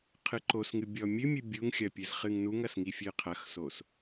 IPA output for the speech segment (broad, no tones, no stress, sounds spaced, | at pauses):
qʰ ɨ ǃ o s ŋ ɨ bʲ ɔ mʲ ɨ mʲ ɨ bʲ u ŋ xʲ ɐ pʲ ɨ z χ ɨ ŋ n u ŋ ɐ s ŋ i fʲ ɨ qʰ ɐ x s o s